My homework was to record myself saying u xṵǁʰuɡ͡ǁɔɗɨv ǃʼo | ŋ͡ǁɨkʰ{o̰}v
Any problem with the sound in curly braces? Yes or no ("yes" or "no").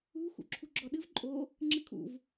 yes